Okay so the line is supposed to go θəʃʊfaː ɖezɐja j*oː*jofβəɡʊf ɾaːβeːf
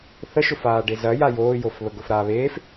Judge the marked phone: correct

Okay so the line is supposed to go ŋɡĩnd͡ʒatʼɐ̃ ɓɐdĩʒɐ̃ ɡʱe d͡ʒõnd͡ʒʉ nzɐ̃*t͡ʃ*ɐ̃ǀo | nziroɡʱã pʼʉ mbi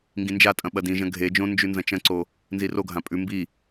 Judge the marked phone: correct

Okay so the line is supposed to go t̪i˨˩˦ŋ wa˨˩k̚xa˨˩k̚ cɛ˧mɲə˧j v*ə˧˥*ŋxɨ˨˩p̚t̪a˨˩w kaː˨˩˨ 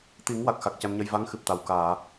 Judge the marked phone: incorrect: a˧˥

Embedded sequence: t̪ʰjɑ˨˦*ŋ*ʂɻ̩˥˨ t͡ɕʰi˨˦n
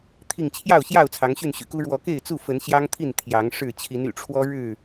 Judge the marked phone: correct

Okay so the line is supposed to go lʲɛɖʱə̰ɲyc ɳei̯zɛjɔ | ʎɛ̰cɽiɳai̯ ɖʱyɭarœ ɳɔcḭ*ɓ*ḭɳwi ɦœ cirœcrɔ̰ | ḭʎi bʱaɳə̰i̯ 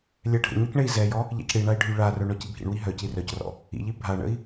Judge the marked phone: incorrect: bʱ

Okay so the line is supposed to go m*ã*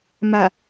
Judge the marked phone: incorrect: a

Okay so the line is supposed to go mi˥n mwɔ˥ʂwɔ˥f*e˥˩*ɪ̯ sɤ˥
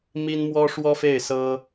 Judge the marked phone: correct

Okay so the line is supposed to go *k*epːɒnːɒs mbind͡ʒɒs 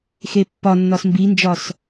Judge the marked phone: incorrect: x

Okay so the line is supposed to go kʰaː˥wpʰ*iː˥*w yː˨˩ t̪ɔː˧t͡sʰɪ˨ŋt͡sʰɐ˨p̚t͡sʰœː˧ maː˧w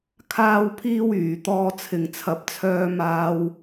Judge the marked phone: correct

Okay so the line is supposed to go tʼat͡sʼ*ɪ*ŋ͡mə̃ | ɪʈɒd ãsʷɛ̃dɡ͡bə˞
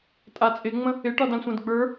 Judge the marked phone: correct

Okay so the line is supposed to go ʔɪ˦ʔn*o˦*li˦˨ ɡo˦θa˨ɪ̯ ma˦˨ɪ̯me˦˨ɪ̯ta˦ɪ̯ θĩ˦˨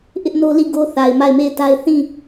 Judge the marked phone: correct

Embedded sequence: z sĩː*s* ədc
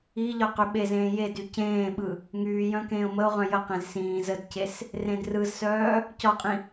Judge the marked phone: incorrect: z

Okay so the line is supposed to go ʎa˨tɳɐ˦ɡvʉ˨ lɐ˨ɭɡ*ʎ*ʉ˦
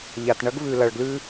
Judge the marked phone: incorrect: l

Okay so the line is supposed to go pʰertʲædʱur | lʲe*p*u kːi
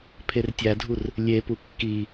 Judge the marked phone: correct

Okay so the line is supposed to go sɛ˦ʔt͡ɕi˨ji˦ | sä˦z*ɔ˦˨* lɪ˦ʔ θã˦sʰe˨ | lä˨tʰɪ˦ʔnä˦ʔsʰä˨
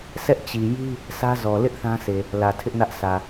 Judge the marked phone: incorrect: ɔ˨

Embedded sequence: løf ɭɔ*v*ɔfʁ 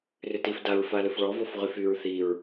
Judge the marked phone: correct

